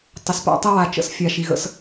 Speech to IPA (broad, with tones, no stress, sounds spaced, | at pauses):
tˤ ə˨ s p a̰˦ tˤ ə˦ w a˨ t͡ʃ ə̰˦ s fʲ a˨ ʃ i˨ ɣ ə̰˦ s